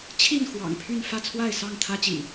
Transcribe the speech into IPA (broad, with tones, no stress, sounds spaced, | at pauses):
t͡ɕʰ i˥˨ n x w ɑ̰˨˩ ŋ pʰ y˥˨ n f ä˥˨ t͡sʰ w a˥˨ ɪ̯ s ɑ˥˨ ŋ t̪ʰ ä˦ t͡ɕ ḭ˨˩